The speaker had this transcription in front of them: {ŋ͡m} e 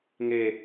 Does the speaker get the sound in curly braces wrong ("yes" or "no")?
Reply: yes